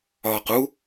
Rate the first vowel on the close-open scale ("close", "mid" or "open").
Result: open